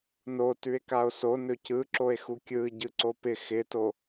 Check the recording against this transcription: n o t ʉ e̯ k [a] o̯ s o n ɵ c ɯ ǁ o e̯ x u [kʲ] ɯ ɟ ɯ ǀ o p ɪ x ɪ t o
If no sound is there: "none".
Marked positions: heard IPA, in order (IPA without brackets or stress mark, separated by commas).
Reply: a, kʲ